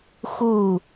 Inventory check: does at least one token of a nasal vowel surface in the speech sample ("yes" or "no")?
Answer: no